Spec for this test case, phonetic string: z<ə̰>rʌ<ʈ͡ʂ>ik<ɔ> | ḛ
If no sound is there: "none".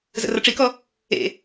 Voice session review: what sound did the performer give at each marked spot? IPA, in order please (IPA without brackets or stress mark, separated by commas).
ə̰, ʈ͡ʂ, ɔ